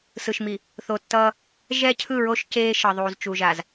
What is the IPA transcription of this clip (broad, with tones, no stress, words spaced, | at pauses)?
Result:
sɯ˨ʃmi˨ | θo˨tːʌː˦ | ʒɛ˦cʰɯ˦˨ɹo˦ʃ ceː˦ ʃʌ˨ðˤuː˨z t͡ʃu˨ʒa˨z